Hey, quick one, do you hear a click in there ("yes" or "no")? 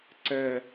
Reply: yes